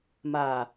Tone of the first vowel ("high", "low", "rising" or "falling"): low